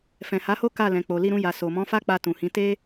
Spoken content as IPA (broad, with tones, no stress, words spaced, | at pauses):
fɛ̃˨ha˨˦ho˦ ka˦˨lɛ̃˨k͡po˨ li˧ɾũ˧ja˨ so˨ mɔ̃˨˦fa˦k͡pa˧ tũ˨hĩ˨˦ te˦